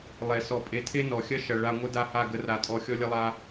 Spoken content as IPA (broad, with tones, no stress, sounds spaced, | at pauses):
lˠ e˨ s ɔ˨ pʼ e˨ tʰ e˦ n ɔ˨ xʲ ɐ˦ ʃ ɐ˨ ɭ a˧ ŋʷ ə˦ d a˦˨ h a˦˨ ɡ ə˧ r a˨ tʼ ɔ˧ xʲ ɔ˧ lʲ ə˧ lˠ a˧